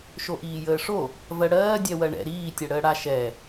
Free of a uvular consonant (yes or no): yes